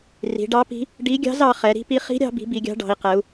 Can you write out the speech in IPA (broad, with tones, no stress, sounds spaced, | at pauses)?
r i̤˩˧ ɖ ɑ˧˥ p i̤˧˥ | ɖ i˧˥ ɡʲ ɑ̤˧˥ z ɑ˩˧ χ ɛ˩˧ ɾ i̤˧˥ p i˧˥ χ i̤˧˥ ɾʲ ɑ̤˩˧ b i̤˩˧ b i˩˧ ɡʲ ɑ̤˧˥ ɖ ɑ̤˩˧ i̯ q ɛ˩˧ u̯